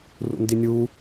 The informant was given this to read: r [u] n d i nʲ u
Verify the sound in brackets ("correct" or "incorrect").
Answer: incorrect